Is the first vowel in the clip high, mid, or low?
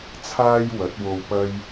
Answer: low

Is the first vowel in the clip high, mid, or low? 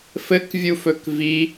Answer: mid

